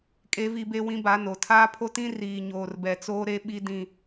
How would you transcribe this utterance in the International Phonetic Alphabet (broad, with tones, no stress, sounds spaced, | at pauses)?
kʼ e˦ v i˦ b e˦ w ĩ˦ b a˨˦ n o˨ tʰ aː˦ pʰ o˦ t ĩ˦ r iː˨ ɲ oː˨ r b ɛ˨ t͡s oː˦ ɾ e˦ ɓ i˦ d ĩ˦˨